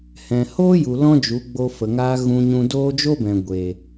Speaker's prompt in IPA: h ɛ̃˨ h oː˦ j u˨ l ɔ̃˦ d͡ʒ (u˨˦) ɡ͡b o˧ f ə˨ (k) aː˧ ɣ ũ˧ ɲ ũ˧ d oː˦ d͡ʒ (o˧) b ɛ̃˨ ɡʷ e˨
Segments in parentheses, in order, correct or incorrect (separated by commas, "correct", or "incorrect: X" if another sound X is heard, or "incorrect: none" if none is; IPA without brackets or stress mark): correct, incorrect: ŋ, incorrect: o˦